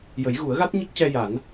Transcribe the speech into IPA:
j ə˨˩˦ j ɣ u˨˩˦ ə̯ ɣ a˦˥ t̚ ɲ ə˦˥ k̚ c ɛ˧ j a˨˩˦ n

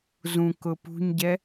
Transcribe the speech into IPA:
z ũ k ʊ p ṳ ɲ ɟ ɛ

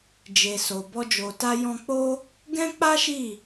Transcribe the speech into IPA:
d͡ʒ e˨ s o˨ b ɔ˧ d͡ʒ o˨ t a˧ j ɔ̃˧ k͡p o˦ | ɡ ɛ̃˦ k͡p a˦ ʃ i˦˨

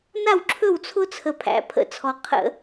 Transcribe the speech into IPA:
n a˥˩ w ǁʰ ɵ˥˩ w t͡sʰ ʊ˦ t͡sʰ ə˨˩ pʰ æ̰˨˦ pʰ ə̰˧˩˧ t͡sʰ ɔ˨˦ qʰ ə̰˧˩˧

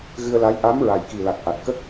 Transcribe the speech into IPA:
ɣ ɨ˧ ə̯ l a˧˥ j ʔ a˧˥ m ɹ a˨˩ j k i˨˩ l a˨˩ k̚ ʔ a˨˩ t̚ k ə˦˥ k̚

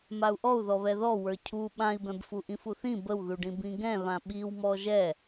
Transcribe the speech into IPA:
m a u̯ ʔ ɔ u̯ ð ɔ β ɛ ð ɔ w ə˞ cʰ u ɓ ã i̯ b ɛ̃ b f u ʔ ĩ f u θ ĩ b ə w ð u ɖ ĩ b ĩ ɡ ɛ̃ β ã ɓ i w m ɔ ʒ ɛ

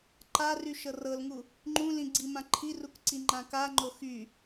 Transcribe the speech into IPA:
ǃ a r y ʃ ɤ r ɤ l ŋ u | ŋ͡ǃ ũ l ĩ ɡ͡ǀ i m ã ǃʰ i r u k ǀ i ŋ͡ǃ ã k a ŋ͡ǃ o x y

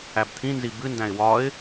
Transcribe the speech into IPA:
æ b t̪ʰ ĩ n z i b ɨ n d æ̃ ɪ̯ w ɒ ɪ̯

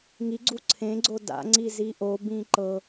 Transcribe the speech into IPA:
ŋ i ɡ͡ǀ u ǀʰ ẽ ɡ͡ǀ o d a̰ ŋ͡ǀ i z i ʔ o b ĩ ǃ ɤ

